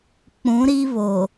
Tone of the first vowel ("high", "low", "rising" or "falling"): rising